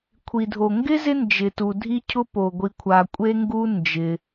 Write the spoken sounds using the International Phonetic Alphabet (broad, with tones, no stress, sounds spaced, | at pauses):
kʷʰ i˩ dʱ o˩ ŋ ɡ ɪ˥ z ɪ˥ n d͡ʒ ɪ˩ t u˩ dʱ i˥ cʰ ʊ˥ p o˩ ɡʷ i˩ kʷʰ a˩ kʷʼ e˥ ŋ ɡ u˥ n d͡ʒ ɪ˩